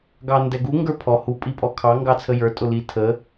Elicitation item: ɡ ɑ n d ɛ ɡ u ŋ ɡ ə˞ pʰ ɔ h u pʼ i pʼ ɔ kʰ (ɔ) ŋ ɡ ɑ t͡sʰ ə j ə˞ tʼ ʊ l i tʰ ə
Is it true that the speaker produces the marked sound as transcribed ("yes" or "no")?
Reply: no